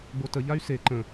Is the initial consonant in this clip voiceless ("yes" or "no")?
no